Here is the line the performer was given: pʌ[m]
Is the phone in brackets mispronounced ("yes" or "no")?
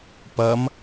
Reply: no